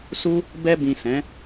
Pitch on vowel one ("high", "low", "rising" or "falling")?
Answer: high